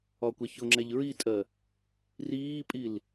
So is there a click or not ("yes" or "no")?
yes